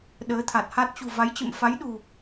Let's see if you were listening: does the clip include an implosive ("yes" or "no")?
yes